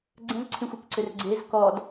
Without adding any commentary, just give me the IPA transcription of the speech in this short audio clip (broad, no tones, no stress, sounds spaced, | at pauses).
ɡ͡ǀ ə̃ z ǀʰ ĩ xʷ i k ǀ ʏ r ɡ͡ǀ e z k ɔ d